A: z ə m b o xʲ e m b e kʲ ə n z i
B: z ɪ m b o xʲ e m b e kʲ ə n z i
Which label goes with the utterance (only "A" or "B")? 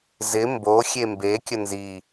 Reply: B